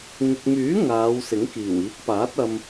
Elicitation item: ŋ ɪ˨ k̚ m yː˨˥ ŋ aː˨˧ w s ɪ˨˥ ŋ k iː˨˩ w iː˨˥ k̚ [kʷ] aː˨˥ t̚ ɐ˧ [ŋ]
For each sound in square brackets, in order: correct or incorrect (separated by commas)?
incorrect, incorrect